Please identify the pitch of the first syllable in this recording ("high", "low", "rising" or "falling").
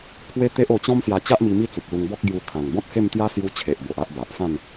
high